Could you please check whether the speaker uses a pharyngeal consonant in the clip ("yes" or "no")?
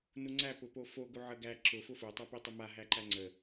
yes